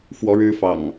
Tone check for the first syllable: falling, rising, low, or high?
rising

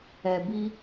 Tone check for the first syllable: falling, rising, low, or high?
low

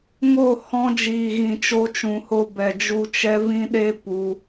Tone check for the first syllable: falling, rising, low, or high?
falling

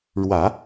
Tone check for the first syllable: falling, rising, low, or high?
low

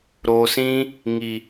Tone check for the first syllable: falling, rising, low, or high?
low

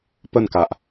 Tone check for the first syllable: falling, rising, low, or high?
falling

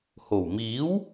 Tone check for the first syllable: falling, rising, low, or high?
low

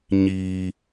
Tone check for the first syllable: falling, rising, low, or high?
low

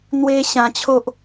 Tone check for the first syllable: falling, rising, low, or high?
high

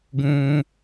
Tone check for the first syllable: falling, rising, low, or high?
low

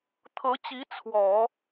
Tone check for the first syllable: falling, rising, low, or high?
rising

